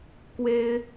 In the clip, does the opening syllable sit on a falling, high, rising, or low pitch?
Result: high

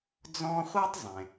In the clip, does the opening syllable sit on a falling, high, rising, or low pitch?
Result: high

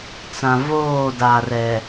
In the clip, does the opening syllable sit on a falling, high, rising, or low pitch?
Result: low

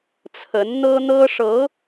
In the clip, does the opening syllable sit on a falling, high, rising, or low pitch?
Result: rising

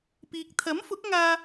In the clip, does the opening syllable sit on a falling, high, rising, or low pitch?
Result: low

